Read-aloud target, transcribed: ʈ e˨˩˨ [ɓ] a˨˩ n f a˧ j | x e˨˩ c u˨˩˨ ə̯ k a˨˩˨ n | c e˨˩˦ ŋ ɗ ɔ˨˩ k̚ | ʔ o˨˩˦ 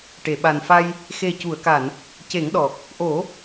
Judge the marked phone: correct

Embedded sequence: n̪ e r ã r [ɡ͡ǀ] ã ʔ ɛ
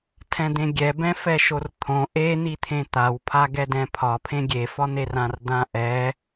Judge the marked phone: incorrect: d̪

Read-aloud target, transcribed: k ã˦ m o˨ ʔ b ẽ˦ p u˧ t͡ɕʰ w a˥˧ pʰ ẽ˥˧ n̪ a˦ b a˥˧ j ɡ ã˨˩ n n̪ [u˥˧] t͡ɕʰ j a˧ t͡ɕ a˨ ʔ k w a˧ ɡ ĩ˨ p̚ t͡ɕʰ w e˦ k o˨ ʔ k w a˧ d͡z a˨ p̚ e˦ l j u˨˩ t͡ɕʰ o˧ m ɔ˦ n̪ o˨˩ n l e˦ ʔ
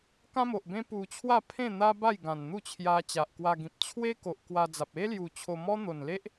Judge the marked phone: correct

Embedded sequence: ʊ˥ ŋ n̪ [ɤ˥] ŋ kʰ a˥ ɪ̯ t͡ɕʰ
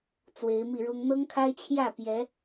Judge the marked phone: correct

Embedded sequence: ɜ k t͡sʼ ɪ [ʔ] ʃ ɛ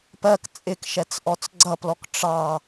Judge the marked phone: incorrect: k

